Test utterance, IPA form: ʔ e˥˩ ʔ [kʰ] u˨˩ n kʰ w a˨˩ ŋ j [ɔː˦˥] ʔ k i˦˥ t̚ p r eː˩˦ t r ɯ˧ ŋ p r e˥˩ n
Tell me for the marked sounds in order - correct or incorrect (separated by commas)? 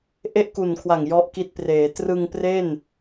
incorrect, incorrect